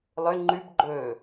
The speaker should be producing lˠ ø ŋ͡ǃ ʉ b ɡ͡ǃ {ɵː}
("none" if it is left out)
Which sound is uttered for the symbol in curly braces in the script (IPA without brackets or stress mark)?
ɵː